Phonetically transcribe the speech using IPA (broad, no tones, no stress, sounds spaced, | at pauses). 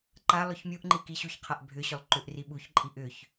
ǃ a lˠ ɵ ç mʲ u ʔ ŋ͡ǃ i k i ɕ u ç qʰ a ʔ bʱ ʏ ɕ ɵ lˠ ǃ ʏ ʔ r i ɓ u ç ǃʼ i ʔ ʏ ç